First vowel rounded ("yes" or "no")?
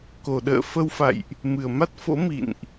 yes